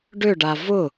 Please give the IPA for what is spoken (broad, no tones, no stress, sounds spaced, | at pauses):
ɖ ʏ ɖ a v ʊ